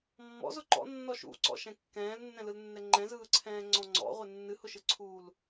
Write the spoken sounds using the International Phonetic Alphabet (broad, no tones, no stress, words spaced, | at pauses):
mːɔ̰zʊ ǃɔ̰nːɔ ʃṵǀɔ̰ʃɛ̃ kːɛ̃ːlnːɛ̃lɯlnːɛ ŋ͡ǃɛ̃zɯːǀʰɛ̃ːŋ͡ǀɔ̃ ŋ͡ǀɔ̰ʁʷɪ nːɨhʊʃɯǀʰuːl